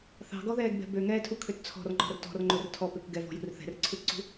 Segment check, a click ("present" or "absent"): present